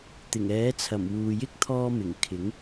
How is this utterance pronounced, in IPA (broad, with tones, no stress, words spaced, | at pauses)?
t̪ɪ˨˩ŋɛː˨˥t͡sʰɐ˨˩m wuː˨jɪ˥k̚ t̪ʰɔː˧mɪ˨˩ŋ kʰɪ˨˥ŋ